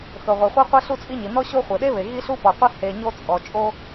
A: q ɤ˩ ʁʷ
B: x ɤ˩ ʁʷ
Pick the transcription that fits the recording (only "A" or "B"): B